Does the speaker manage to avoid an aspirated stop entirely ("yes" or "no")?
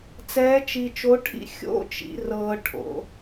no